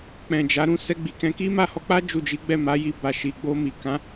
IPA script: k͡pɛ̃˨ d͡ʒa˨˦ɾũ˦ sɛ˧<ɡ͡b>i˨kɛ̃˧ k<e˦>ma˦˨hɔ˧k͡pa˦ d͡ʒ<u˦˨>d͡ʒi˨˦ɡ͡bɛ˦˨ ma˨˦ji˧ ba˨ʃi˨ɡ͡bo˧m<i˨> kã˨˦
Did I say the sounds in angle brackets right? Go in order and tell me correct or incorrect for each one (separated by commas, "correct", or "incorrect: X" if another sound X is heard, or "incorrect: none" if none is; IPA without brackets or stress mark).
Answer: correct, incorrect: i˦, correct, correct